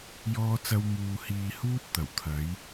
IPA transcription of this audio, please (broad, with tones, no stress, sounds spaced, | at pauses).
j ɔː˥ t͡s ɐ˥ w m uː˧ h iː˧ h uː˥ t̚ t̪ ɐ˨˩ w t̪ʰ ɐ˨˥ j